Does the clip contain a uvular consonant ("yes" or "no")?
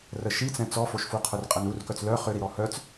yes